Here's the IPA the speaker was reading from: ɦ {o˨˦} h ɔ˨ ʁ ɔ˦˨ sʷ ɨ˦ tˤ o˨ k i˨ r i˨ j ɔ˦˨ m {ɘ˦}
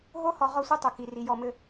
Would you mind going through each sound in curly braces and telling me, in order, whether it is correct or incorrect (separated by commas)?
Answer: incorrect, correct